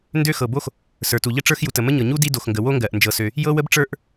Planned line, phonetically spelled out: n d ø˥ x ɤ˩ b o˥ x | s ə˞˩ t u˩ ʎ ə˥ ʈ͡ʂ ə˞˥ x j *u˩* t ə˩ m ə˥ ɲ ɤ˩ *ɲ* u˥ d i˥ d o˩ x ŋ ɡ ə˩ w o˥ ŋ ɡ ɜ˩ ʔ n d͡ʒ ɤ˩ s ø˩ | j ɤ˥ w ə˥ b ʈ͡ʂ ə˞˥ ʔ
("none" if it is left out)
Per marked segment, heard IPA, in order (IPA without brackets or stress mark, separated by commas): u˩, ɲ